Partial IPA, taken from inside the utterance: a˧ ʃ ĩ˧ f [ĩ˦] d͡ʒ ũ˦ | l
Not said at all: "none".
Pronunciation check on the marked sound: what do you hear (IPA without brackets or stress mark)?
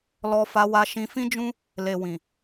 ĩ˦